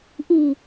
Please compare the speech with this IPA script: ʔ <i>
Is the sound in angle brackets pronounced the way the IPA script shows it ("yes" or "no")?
yes